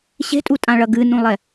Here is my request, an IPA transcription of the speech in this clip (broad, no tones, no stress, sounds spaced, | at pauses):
ɕ e̤ tʼ u tʼ ã ɭ ɐ ɡ ɨ n ũ lˠ ɛ